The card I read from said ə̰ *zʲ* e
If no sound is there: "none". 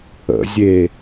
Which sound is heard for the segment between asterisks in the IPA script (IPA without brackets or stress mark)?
zʲ